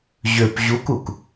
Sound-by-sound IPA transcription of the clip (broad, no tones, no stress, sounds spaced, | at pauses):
ʑ ø p ʑ u k u k